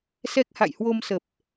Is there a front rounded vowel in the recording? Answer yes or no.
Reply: no